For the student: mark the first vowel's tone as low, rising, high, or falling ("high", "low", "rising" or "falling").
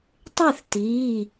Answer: falling